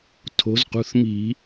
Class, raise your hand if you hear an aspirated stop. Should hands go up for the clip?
yes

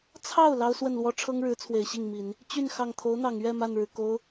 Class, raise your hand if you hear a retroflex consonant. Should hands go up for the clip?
yes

